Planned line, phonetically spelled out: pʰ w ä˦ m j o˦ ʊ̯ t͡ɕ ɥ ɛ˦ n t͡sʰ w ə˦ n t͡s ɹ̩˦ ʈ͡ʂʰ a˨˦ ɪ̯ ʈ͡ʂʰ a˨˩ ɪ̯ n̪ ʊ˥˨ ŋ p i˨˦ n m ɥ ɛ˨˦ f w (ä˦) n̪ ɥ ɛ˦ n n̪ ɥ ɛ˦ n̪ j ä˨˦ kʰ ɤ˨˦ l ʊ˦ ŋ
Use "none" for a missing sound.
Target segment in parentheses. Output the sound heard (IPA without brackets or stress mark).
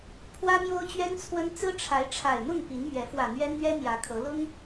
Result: ä˨˩